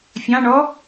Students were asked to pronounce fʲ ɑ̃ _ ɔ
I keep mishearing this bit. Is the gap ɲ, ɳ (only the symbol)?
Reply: ɳ